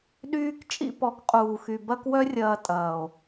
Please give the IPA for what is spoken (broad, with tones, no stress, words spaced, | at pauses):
ɗyː˦k t͡ʃʼḭ˧pɔ˨˦k qʼuː˨xy˨ bɐ˦kwœ˦rʲɐː˧ tʼɐː˨o̯